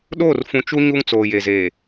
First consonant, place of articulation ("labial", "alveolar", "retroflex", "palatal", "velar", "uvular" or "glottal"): alveolar